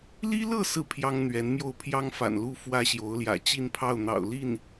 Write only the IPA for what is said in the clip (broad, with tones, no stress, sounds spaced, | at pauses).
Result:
l i˥ l ɤ˥˧ s ɹ̩˥˩ pʰ j ɑ˥ ŋ n̪ ɥ ɛ˧˥ n m j o˥˩ ʊ̯ pʰ j ɑ˥ ŋ f a̰˨˩ n l u˥˩ f w ä˥ ɕ j o˧˥ ʊ̯ l j ä̰˨˩ t͡ɕ i˥˧ n pʰ ɑ˥˩ ʊ̯ n̪ ɑ̰˨˩ ʊ̯ l i˥˩ n